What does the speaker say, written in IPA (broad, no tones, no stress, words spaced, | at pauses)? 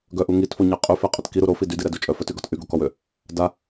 ɡœʔu ŋitfoɲɛ qʼyfeqʼət kiɾu ɾofi dydiɾɛdu t͡ʃʼœfœtyɡɔt ʔyɡokɔwø | da